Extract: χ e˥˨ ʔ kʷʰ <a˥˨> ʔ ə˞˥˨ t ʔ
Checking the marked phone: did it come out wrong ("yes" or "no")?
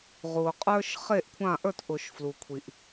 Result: yes